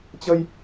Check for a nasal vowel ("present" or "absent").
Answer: absent